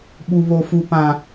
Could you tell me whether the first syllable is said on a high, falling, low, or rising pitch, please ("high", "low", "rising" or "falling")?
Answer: high